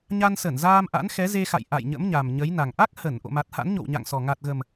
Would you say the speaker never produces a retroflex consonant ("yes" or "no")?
yes